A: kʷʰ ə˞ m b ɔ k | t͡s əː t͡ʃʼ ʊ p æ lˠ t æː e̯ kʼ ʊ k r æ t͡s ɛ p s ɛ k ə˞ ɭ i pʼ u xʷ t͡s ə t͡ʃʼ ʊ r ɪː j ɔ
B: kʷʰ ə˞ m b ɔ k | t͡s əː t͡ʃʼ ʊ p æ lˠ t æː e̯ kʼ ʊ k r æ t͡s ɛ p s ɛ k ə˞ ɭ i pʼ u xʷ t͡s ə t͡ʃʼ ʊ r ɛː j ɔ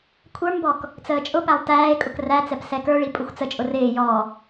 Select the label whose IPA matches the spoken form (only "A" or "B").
A